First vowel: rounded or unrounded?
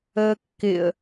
unrounded